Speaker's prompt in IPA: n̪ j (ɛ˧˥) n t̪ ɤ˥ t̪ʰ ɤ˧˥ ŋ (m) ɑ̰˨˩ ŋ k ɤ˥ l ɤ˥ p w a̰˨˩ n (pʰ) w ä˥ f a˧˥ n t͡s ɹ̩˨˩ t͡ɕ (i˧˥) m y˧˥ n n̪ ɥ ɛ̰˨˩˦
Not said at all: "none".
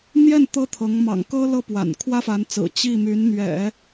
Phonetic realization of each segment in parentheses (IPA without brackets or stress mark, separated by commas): ɛ˥˩, m, kʰ, i˥˩